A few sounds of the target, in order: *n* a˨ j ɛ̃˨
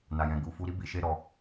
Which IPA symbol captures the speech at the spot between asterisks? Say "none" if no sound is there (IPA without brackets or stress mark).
n